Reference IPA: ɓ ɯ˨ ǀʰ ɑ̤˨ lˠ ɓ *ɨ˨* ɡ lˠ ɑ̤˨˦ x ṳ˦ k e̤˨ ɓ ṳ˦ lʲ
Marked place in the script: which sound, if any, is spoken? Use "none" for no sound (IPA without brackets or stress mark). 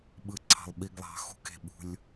i˨